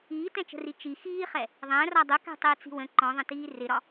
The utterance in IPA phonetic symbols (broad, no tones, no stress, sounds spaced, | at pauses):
iː t ɛ̃ t͡ʃ ə̤ r i t͡ʃ i x iː χ ɛ | ðˤ æ̃ r ɒ dˤ ʊ k ɛ̤ tˤ ɪː t͡s i̤ w ə̃ ǃ ɔ̃ ðˤ ə̃ t iː r ɪ ɾ ɒ